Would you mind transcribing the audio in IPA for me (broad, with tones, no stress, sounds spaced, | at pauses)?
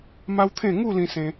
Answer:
m a˦ w t̪ʰ ẽ˥˧ ŋ u˥˧ l ĩ˦ s ẽ˦